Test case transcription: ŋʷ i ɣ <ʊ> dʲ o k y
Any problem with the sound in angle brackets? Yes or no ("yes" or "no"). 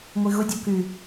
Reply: no